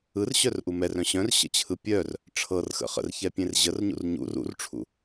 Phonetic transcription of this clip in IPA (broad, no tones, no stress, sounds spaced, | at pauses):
ɯ r ɕ œ r ʔ u m ɛ r œ̃ ɕ œ̃ r ɕ ə̰ t͡ɕʰ ɯ pʲ œ r | ʈ͡ʂʰ ɤ r x ə̰ χ ə̰ r ç ɛ pʲ ẽ r ʑ ə r ɲ ṵ r ɲ ṵ r ṵ r ʈ͡ʂʰ ṵ